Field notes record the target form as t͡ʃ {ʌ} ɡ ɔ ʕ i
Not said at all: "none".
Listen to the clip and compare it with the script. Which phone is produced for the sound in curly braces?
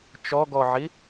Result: ɔ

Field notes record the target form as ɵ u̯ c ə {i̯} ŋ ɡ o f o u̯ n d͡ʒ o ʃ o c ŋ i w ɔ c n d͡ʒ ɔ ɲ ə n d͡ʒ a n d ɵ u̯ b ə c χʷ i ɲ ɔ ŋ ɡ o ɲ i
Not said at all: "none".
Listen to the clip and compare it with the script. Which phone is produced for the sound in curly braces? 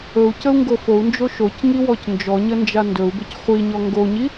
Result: u̯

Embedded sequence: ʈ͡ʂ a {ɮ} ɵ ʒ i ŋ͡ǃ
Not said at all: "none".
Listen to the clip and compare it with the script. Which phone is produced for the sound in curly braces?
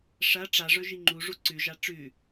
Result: ʐ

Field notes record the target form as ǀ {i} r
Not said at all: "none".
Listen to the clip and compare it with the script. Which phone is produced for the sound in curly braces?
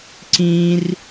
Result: ĩ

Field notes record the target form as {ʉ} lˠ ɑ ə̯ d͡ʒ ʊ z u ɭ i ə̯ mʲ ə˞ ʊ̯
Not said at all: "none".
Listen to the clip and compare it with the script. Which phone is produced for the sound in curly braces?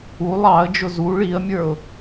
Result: u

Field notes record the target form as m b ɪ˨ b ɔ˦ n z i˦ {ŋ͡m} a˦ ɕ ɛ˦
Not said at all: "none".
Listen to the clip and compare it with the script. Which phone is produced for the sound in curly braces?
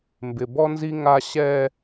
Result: ŋ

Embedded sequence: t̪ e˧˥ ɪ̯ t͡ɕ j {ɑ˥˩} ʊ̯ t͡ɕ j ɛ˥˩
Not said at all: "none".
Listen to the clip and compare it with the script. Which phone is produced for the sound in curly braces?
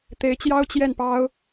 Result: ɑ˥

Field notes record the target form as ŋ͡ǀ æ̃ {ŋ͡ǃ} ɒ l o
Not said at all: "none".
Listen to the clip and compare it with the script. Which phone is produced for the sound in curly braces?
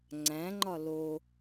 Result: ŋ͡ǃ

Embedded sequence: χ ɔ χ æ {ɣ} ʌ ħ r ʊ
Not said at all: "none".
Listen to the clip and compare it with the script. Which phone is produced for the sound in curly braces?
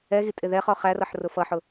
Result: r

